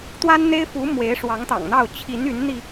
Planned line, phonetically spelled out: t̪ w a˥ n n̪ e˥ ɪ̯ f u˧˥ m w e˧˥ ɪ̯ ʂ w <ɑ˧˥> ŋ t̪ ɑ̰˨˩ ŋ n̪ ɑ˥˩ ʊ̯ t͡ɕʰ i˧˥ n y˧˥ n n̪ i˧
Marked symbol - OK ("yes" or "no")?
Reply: yes